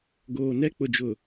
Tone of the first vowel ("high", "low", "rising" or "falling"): low